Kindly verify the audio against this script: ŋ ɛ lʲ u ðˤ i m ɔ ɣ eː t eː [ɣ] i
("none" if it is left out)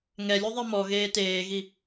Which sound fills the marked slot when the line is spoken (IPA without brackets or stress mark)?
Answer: ɣ